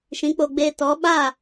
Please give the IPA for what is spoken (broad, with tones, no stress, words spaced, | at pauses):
ʃĩ˨˦k͡po˧ɡ͡beː˧ tɔ˨˦ ɓa˦˨